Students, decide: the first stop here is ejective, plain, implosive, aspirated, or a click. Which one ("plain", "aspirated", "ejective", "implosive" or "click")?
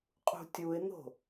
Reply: ejective